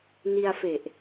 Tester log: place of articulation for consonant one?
alveolar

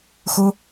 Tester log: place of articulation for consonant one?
velar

